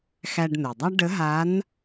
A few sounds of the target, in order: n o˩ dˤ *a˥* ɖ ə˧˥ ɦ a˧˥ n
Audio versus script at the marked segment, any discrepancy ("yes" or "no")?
no